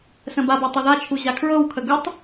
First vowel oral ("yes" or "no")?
no